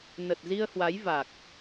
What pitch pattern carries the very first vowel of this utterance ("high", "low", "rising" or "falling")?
low